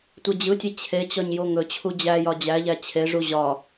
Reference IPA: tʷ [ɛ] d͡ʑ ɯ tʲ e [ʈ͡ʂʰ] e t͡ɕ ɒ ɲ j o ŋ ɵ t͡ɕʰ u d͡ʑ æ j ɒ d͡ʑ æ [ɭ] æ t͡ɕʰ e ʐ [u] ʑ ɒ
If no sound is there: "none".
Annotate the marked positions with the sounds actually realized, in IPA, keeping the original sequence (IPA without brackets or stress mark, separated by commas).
e, t͡ɕʰ, ʎ, u